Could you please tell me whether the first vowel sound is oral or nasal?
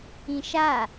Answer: nasal